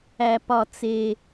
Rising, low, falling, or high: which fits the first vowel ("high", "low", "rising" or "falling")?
low